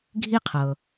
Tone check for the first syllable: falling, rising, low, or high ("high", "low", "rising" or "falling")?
high